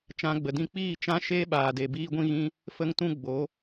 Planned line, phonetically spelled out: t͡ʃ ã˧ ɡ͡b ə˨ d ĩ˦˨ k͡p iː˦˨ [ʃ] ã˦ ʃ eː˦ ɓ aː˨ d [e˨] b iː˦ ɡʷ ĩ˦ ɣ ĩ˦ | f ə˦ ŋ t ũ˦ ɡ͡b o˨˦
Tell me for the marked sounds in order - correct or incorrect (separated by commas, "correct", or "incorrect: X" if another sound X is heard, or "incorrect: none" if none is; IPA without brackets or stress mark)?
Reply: incorrect: t͡ʃ, correct